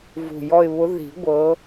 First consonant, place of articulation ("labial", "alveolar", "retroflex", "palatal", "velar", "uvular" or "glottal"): labial